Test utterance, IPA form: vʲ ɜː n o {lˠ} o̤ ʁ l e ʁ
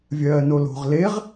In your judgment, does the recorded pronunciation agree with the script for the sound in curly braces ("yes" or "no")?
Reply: no